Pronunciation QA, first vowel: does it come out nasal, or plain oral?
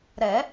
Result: oral